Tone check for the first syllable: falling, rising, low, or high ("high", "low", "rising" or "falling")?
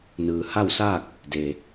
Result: low